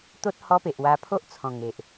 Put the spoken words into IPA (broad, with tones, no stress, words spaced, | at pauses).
t̪o˦t̚ hɔ˦pe˨ʔ wa˧pʰo˦ʔ t͡sʰɔ̃˨˩ŋe˨ʔ